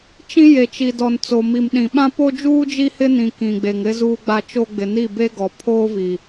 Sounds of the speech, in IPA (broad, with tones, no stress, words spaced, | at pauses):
t͡ʃĩ˦ je˨t͡ʃi˨dɔ˨nt͡so˨ mi˨m ɗĩ˨ɓã˦po˦d͡ʒuː˦ d͡ʒi˦hɪ˦nĩ˨ kĩ˨ɡ͡be˨ŋ ɾɪ˦ zuː˦ɡ͡ba˦t͡ʃo˦ ɡ͡bɪ˨ni˦˨be˦ɡɔ˨ pʰoː˦vi˨